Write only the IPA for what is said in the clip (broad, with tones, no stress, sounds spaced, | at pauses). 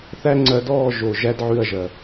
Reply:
θ æ˦ ŋ͡ǀ ɜ˧ d ɔː˦˨ ʒ o˨ ʒ æ˦ d ʕ ʉ˦˨ ɐ̯ ʒ ɜ˨